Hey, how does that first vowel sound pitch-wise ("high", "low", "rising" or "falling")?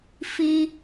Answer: high